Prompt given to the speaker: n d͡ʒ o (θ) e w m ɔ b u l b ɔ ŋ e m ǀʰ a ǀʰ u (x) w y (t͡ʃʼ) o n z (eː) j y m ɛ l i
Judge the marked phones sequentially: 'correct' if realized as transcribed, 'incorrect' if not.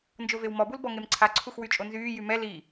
incorrect, correct, correct, incorrect

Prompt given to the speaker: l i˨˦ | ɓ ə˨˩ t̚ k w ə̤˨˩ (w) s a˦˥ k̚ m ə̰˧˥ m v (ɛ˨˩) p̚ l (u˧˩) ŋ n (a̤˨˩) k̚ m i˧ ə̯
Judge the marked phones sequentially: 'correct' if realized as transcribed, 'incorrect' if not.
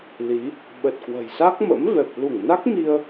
incorrect, correct, correct, incorrect

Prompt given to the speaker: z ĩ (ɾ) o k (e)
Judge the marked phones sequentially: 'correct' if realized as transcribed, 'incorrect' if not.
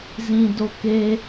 incorrect, correct

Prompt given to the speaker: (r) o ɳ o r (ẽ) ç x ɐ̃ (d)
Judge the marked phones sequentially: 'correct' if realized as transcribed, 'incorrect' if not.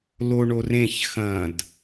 incorrect, correct, correct

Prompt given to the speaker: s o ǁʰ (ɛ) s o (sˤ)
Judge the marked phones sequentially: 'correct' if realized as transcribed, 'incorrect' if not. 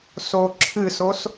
incorrect, incorrect

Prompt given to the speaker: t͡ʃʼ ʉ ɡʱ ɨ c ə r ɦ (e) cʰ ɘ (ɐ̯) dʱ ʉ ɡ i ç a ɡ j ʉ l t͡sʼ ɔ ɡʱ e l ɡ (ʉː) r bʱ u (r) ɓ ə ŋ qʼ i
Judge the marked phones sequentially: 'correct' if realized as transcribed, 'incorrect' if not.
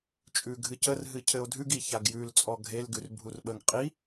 incorrect, incorrect, incorrect, correct

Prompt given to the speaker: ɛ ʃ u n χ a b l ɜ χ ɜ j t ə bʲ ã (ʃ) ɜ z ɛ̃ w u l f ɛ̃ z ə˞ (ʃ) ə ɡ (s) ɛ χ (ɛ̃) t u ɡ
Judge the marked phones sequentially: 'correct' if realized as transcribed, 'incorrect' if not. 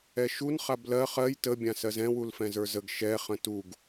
incorrect, incorrect, incorrect, incorrect

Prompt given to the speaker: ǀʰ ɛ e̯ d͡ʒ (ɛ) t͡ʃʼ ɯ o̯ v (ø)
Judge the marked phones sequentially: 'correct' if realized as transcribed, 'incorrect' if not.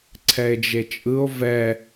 incorrect, incorrect

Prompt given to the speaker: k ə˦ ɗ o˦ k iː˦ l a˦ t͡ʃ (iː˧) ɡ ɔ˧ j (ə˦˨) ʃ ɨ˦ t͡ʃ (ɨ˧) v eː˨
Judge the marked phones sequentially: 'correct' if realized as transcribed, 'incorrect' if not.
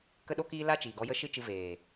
incorrect, incorrect, correct

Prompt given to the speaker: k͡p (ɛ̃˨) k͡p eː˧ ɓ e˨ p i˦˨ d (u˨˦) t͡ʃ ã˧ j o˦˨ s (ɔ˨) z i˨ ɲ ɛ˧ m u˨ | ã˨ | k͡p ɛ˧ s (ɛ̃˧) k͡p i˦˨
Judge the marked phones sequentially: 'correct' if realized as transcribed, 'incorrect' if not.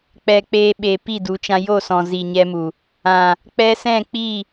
incorrect, correct, incorrect, incorrect

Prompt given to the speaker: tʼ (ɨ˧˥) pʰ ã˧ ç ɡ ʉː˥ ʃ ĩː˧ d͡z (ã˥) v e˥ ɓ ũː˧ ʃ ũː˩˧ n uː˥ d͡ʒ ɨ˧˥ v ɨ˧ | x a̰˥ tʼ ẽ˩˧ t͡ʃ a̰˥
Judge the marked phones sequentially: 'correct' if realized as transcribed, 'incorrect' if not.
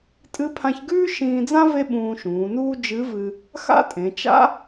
correct, correct

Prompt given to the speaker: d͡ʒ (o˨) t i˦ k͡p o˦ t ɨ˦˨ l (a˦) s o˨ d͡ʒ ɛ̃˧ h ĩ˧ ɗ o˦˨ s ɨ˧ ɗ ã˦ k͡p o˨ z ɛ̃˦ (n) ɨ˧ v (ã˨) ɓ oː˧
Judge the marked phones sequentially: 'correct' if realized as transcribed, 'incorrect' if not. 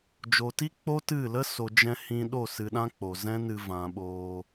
correct, incorrect, correct, correct

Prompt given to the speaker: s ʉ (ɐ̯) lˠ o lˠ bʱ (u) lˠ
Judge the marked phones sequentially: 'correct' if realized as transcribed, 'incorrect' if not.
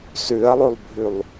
correct, incorrect

